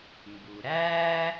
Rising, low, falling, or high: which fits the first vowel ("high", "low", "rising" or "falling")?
low